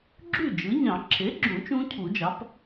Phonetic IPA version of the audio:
ɡ͡ǁ y˥˩ d͡ʒ ɯ˩˥ ɲ ɑ̃˨˩˦ ǁʰ e˩˥ ɡ͡ǁ ũ˨˩˦ t͡ʃ ũ˦˥ cʰ u˨˩˦ d͡ʒ ɑ˩˥ p

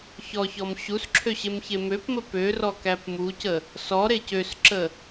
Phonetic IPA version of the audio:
ç ɔ ç ɔ m ɕ u s ǁʰ ø ɕ e m ç e m ø p m ə p ø r ɔ k æ p m u c ə | s ɔ ɾ e c ø s ǁ ə

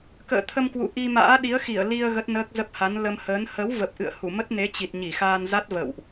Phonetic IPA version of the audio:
k ə̰ː˧˨ t̪ʰ ə˧ m k w ṵ˧˨ ʔ i˧ m a̰ː˧˥ ɗ i˨˦ ə̯ x i˧˩ ə̯ l i˧ ə̯ ɣ ə˦˥ t̚ n əː˦˥ k̚ z ə˦˥ p̚ h a˨˦ n l ə˧ m h əː˨˦ n h ə˨˦ w v ə˨˩ p̚ ʔ ɨ̰˧˨ ə̯ h u˧˩ m ə˦˥ t̚ n e˨˦ t͡ɕ i˨˩ t̚ ɲ i˧˩ x aː˧ n z a˦˥ t̚ v ə̰˧˨ w ʔ

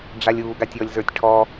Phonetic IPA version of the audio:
ɖ͡ʐ a lʲ uː ɡ a tʲ ɔ lʲ z ə˞ tʲ ʈʰ ɔ

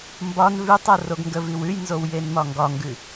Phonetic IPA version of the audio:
m b ɒ n v ʉ tˤ o r o ɡ ŋ ɡ ə v i w ʉ j n z o w j e n m ɒ ŋ ɡ ɒ ŋ ɡ ʉ

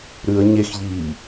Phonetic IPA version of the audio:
ɾ ʉ ə̯ ɲ e x ʎ iː

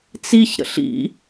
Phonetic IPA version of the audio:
t͡s i ç ɾ ə̰ ɬ ḭ

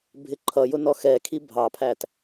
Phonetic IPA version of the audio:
bʱ ɪ ǃʰ ʌ j ʊ n ɔ x ɛ kʰ i bʱ ɑ pʰ æ t

